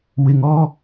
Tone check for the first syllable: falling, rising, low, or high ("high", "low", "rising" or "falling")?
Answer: low